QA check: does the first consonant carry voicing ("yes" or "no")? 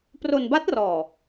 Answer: no